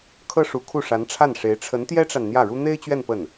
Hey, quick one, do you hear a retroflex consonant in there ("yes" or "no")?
yes